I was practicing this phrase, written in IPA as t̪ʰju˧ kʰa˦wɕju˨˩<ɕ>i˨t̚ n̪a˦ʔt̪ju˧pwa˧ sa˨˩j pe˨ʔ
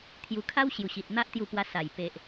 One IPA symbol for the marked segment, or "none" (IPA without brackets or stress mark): ɕ